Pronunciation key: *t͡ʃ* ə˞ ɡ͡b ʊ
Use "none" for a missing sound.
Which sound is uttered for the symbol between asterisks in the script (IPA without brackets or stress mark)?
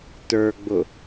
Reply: t